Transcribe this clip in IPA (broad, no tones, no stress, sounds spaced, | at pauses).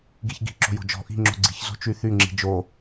ɡ i ç ɡ i̤ ǁ o̤ j o̤ d͡ʒ ɔ̤ ʔ i̤ ŋ͡ǁ o̤ ɡ͡ǀ i̤ ç z o̤ t͡ʃ y θ y ŋ͡ǁ i̤ d͡ʒ o